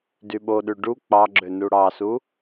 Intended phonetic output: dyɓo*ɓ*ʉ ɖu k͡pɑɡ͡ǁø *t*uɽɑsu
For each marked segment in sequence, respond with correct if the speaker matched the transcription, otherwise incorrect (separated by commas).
incorrect, incorrect